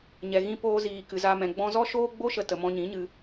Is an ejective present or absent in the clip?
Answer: absent